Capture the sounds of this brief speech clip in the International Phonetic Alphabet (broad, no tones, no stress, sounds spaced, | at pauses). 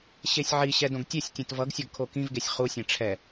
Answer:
ɕ e sʲ ʕ i ɕ ɛ d õ ɡ tʲ e sʲ tʲ ɛ̃ t v ʌ ɡ sʲ ʌ ɡ kʰ o k ĩ v ɡ e sʲ χ u sʲ ẽ ʈ͡ʂʰ ɛ